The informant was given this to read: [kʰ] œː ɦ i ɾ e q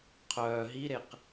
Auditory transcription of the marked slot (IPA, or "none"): qʰ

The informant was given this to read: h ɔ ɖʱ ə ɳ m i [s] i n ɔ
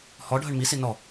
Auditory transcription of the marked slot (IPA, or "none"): s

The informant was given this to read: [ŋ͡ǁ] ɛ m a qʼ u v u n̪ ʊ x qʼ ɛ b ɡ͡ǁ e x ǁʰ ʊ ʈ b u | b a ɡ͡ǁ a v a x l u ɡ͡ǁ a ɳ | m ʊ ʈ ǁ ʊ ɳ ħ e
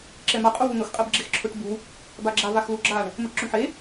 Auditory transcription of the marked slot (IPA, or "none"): ǁ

